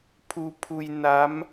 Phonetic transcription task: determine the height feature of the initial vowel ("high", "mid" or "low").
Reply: high